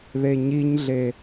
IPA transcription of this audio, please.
ð e ɲ i ɲ ɮ e

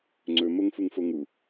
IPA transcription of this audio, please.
ŋ͡ǀ ɵ m o ŋ f u ŋ f o ŋ u

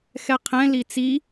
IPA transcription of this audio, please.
x ɛ qʰ ɛ̃ l i t͡s i

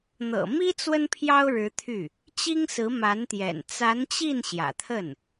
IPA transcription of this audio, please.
n̪ ɤ̰˨˩ m i˥ t͡s w ə˥ n pʰ j ɑ˥ ʊ̯ ɻ ɻ̩˧˥ t̪ʰ y˥˩ | t͡ɕ i˥ ŋ s ɹ̩˧˥ m a˧˥ n t̪ j ɛ̰˨˩ n t͡s a˧˥ n t͡ɕ i˥˩ n ɕ j ä̰˨˩ t̪ʰ ə˥˩ n

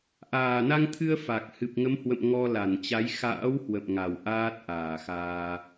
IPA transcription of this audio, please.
ʔ aː˨˩ n a˧ ŋ t̪ʰ ɨ˧ ə̯ f a˨˩ k̚ h ɨ˨˩ p̚ ŋ ə˨˦ m h w ə̰˧˨ m ŋ ɔ˧ l a˧˩ n t͡ɕ a˨˦ j x a̰ː˧˥ w h w ə̰˧˨ m ŋ a˨˩ w ʔ aː˦˥ t̚ ʔ aː˧˩ x aː˧

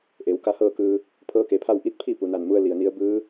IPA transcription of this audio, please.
ʔ e˩˧ w k a˧˥ h ɤː˥˨ k ɯː˧ | pʰ ɤː˧˥ k e˩ pʰ a˥˨ w ʔ i˥˨ t̚ pʰ i˥˨ p u˩ n a˧˩ n m u˧ ə̯ l i˩ ə̯ n i˧˥ ə̯ b ɯː˧˥

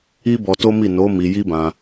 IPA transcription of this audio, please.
i˦ b ɔ˧ t o˦ m i˦˨ n o˨˦ m i˧ j i˦ b ã˧

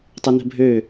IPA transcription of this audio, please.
tˤ ə n ə̤ bʱ ø

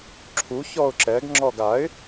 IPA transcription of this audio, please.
ǁʰ u ç ɔ ʊ̯ ǁ ɛ ɡ ŋ͡ǁ ɔ ɡ a ɪ̯

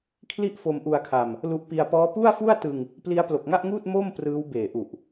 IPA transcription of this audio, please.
kʰ l i˥˩ ʔ f o˧ m ʔ u˧ a̯ kʰ a˧ m | l u˦˥ ʔ p i˧ a̯ p ɔː˦˥ p u˥˩ a̯ f u˥˩ a̯ t ɯ˧ ŋ | p l i˦˥ a̯ p l o˨˩ k̚ ŋ a˥˩ ʔ ŋ uː˥˩ t̚ m o˥˩ m p r ɯː˦˥ w b eː˨˩ ʔ u˨˩ ʔ

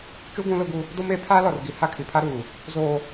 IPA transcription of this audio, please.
t͡ʃ u˦ ɡ ũ˦ l ʊ˦ ɡ u˦ | d o˦ m e˨˦ pʰ aː˦ l ɔ˨ r ɡ i˨ h a˦ kʰ i˨ pʰ a˦ ɾ uː˨ | z oː˨

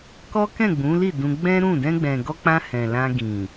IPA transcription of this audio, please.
k ɔ˦ k ɛ̃˦˨ ɡ͡b ũ˨˦ l i˦˨ d ũ˧ ɡ͡b ɛ̃˦ ɾ ũ˦˨ d ɛ̃˧ ɡ͡b ɛ̃˨ ɡ ɔ˧ k͡p ã˧ h ɛ̃˨ l ã˧ ɡ ĩ˨

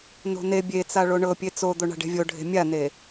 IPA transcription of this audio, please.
n o̤ n e bʲ e t͡s a ɭ o ɳ ɤ pʲ e t͡s o d̪ o ɳ a̤ ɖ e̤ vʲ o ɖʱ e̤ mʲ a n e

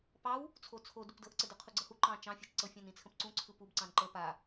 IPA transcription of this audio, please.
p ɑ w | t͡sʰ o t͡sʰ o d u p d ɤ ʔ ǀ ə d ɯ qʰ u ɡ͡ǀ ɤ h u ǃ ɑ̃ t͡ʃ ɑ̃ fʲ ɑ t͡ʃ ǀ ɤ fʲ ɑ̃ n ĩ t͡sʰ ə̃ p ǀ ũ ǀʰ ɯ p u b ǀ ɑ̃ n ǃ ə p a

